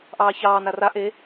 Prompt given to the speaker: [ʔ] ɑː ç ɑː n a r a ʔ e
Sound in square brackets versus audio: correct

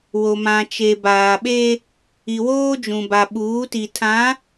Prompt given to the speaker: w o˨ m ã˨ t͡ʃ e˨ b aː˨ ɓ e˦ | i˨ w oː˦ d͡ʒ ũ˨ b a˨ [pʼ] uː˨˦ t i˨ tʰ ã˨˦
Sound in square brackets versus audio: incorrect: ɓ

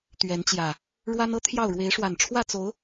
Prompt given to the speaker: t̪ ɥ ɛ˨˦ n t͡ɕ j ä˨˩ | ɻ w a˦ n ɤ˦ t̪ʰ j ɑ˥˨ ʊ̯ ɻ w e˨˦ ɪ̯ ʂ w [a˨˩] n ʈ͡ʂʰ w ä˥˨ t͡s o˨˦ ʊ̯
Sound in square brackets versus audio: correct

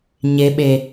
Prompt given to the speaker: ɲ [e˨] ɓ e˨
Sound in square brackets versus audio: correct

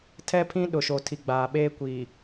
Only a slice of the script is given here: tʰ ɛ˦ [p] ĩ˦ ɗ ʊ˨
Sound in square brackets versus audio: incorrect: pʰ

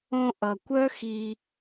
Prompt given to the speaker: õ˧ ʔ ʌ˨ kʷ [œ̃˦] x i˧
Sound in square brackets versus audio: incorrect: œ˦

